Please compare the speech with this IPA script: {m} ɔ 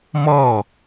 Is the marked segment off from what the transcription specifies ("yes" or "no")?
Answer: no